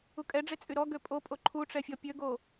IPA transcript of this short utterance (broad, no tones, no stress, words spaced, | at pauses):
ukʼɛɖ͡ʐe t͡sʼyɾɔɡø pʼopʼo ǃʰuʈ͡ʂɛ fʲɔpʲøɡo